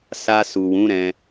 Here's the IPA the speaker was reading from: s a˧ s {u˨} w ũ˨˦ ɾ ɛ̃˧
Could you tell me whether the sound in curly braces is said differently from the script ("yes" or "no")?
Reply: no